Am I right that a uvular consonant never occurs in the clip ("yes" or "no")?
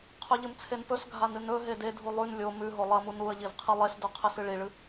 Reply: no